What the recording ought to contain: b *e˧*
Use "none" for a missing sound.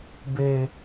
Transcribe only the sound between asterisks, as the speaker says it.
e˧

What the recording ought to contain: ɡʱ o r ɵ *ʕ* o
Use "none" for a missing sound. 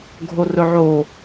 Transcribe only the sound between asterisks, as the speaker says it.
ʕ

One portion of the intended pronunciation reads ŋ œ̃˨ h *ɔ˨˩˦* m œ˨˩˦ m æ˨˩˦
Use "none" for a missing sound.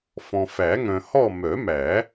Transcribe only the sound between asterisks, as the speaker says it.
ɔ˦˨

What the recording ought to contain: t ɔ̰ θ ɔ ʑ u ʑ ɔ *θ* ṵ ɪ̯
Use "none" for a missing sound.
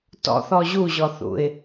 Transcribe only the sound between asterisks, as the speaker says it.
θ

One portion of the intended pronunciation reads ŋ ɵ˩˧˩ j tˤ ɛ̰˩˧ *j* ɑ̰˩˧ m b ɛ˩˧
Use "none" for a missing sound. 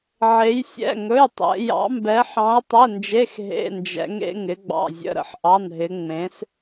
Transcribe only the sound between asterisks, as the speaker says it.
j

